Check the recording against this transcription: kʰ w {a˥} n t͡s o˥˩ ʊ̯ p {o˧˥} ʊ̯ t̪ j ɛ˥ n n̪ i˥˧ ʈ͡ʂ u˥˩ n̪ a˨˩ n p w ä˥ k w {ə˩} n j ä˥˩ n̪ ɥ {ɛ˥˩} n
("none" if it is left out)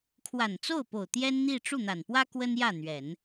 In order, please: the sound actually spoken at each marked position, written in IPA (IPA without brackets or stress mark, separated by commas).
a˨˩, o˨˩, ə˥, ɛ˨˩˦